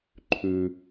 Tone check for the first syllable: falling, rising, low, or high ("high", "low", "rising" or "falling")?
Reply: low